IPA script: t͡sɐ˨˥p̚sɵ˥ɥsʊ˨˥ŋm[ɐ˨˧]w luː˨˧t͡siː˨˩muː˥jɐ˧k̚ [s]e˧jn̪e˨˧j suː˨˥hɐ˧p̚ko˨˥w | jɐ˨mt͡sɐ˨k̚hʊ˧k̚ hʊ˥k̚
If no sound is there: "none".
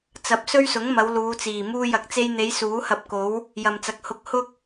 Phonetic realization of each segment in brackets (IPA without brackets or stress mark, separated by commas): ɐ˨˧, t͡s